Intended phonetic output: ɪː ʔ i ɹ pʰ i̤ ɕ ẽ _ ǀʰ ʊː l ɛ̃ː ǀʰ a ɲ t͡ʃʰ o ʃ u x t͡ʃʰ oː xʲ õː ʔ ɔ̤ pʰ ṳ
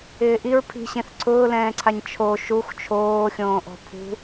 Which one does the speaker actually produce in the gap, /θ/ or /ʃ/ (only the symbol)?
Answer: θ